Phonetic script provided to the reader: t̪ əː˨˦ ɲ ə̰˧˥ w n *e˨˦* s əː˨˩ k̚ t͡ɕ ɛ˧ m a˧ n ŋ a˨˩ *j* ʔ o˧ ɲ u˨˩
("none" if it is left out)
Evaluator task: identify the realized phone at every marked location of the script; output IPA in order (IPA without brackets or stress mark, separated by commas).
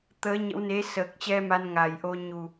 e˨˦, j